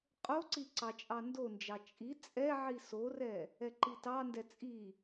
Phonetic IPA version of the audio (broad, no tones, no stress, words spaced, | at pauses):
qʼoǀi ǀɑt͡ʃʼɑndond͡ʒɑ t͡ʃʼi t͡sʼɛ ʕisorɛ | ɛǃitɑndɛ t͡sʼi